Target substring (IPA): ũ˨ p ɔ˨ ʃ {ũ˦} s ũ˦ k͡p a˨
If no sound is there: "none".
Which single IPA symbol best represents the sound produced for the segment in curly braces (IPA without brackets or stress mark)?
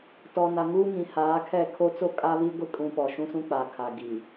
ũ˦